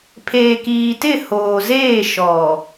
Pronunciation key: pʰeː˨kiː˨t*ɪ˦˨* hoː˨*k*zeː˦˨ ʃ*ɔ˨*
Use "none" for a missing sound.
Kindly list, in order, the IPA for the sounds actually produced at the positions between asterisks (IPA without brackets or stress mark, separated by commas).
ɪ˦˨, none, ɔ˨